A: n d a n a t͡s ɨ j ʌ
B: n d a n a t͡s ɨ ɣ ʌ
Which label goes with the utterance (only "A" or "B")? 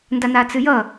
A